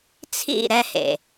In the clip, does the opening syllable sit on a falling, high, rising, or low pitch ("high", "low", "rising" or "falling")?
falling